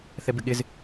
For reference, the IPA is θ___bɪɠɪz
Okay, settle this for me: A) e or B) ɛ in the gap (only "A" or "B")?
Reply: B